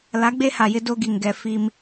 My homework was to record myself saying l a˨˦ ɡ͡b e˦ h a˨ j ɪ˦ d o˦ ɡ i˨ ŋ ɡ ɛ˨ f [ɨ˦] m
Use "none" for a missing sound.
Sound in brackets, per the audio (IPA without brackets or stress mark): i˦